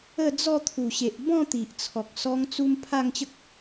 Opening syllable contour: falling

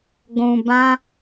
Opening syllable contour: low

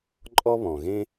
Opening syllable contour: high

